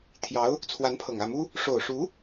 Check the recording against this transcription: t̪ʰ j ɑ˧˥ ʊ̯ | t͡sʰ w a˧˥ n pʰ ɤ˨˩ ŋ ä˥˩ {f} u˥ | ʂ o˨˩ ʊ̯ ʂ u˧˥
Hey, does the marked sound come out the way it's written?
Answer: no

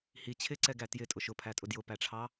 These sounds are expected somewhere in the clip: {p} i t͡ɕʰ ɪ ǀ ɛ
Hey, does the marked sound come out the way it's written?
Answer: no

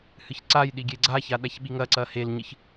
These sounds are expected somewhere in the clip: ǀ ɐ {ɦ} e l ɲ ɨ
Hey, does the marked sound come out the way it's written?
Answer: no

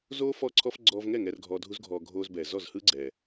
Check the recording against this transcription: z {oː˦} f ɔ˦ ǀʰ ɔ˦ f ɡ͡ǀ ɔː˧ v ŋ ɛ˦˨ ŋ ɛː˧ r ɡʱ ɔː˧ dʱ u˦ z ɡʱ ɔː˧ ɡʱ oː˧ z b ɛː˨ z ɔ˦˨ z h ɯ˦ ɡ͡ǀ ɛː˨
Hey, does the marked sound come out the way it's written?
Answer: yes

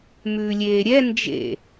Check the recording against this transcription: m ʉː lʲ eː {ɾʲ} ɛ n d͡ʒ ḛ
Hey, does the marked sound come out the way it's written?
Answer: yes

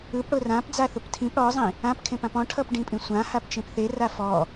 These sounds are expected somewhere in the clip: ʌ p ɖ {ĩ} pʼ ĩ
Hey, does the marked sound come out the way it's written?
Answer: yes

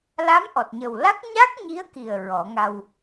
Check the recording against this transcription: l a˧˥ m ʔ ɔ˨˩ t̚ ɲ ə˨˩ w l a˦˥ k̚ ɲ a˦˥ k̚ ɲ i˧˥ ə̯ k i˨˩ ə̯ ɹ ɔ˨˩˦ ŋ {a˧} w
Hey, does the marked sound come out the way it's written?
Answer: yes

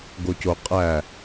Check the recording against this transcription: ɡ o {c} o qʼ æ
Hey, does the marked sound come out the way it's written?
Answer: yes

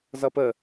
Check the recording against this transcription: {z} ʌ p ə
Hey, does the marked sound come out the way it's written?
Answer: yes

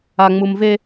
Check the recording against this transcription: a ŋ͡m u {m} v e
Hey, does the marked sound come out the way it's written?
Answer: yes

